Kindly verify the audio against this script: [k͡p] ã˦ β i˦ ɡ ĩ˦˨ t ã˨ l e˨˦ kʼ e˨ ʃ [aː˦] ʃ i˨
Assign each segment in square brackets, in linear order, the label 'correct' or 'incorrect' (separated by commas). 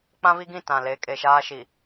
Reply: correct, correct